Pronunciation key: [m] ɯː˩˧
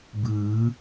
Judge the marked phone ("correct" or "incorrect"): incorrect